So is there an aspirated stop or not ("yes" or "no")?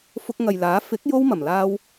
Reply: no